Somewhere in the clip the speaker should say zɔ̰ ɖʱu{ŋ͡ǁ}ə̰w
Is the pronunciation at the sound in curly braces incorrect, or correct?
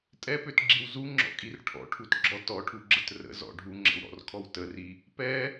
correct